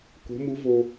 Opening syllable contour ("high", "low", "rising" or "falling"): rising